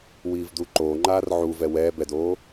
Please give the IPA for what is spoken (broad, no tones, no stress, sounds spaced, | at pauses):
w iː v d u ǃ oː ŋ͡ǃ aː r ʕ u v ɛ w ɛ b ɛ d oː